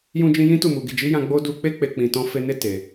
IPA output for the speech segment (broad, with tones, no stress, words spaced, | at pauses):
jũ˧d͡ʒĩ˧ jĩ˦tu˦˨mu˨ ɡi˨d͡ʒi˨˦jã˧ ɡ͡bo˦ du˧k͡pe˦ k͡pe˧ k͡pĩ˧tɔ̃˦ fe˧ne˦ te˧